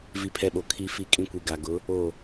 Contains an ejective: yes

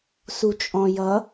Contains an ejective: yes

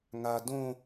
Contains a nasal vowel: yes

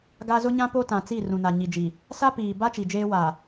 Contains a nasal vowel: yes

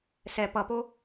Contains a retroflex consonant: no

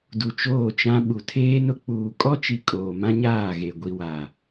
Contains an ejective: yes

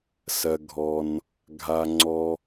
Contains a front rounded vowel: no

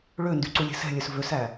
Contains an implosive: no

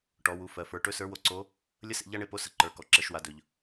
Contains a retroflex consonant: yes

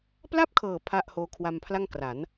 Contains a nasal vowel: no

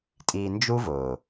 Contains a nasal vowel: no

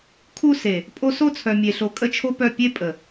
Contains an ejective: yes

